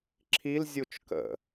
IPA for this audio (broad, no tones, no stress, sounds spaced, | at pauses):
ǁʰ i l zʲ u t͡ʃ k ə̰